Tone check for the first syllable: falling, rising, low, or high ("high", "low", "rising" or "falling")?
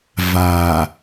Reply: low